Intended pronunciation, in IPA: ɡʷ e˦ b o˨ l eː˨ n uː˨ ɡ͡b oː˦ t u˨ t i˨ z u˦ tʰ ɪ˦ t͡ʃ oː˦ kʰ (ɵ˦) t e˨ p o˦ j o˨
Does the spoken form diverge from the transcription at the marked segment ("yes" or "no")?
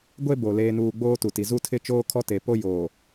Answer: yes